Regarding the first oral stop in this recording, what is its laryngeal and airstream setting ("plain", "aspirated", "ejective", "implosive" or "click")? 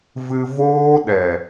implosive